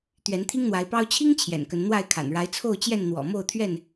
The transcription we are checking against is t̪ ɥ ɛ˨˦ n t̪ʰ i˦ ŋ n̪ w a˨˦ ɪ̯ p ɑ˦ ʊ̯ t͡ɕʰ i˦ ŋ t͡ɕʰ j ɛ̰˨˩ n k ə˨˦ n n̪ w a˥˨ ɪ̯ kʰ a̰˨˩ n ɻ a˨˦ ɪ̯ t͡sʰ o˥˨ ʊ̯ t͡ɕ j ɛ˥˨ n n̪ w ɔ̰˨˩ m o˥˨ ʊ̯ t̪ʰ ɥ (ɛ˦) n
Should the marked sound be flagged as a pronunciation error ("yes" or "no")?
yes